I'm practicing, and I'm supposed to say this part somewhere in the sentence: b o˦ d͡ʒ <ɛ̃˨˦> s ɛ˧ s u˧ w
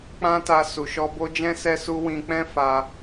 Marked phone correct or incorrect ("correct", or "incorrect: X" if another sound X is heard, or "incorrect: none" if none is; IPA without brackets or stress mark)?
incorrect: ɛ̃˦